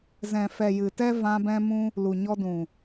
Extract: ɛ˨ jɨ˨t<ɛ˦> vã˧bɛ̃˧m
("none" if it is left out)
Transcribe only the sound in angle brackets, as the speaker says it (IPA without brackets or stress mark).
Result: ɛ˦